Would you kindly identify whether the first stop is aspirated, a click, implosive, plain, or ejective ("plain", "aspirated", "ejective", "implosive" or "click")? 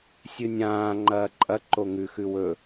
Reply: click